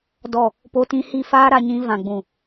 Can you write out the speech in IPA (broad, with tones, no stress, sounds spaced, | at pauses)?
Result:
d ɔ˦˨ | p o˦ t ĩ˦ h i˦˨ f aː˦ ɾ a˧ ɲ ĩ˧ v ã˨ ɡ͡b ũ˨